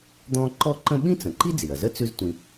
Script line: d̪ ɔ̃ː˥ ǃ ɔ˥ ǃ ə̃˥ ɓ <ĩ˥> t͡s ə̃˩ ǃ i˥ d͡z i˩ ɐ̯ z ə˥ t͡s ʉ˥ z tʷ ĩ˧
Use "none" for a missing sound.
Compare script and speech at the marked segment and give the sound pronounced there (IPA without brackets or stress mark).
ĩ˥